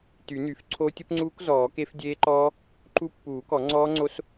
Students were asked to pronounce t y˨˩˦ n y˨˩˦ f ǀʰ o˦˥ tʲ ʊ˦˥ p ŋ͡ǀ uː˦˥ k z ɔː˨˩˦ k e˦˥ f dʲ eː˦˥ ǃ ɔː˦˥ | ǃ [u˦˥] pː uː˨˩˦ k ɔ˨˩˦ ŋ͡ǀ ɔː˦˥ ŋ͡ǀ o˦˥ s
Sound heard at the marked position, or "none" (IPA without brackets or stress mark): u˦˥